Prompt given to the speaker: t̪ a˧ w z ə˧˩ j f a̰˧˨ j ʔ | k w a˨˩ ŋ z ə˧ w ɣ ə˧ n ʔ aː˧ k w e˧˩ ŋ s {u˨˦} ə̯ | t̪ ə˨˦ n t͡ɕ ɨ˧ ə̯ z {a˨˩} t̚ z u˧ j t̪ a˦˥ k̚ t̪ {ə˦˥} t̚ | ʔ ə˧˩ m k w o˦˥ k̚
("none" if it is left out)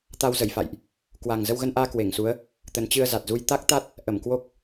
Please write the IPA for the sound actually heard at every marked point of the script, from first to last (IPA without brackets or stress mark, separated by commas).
u˨˦, a˨˩, a˦˥